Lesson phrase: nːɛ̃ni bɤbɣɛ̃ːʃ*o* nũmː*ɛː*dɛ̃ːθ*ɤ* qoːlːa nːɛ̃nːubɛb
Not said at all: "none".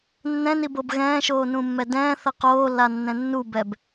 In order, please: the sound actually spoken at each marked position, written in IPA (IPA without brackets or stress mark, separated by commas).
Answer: oː, ɛ, ɤ